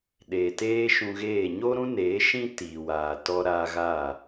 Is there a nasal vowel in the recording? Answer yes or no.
yes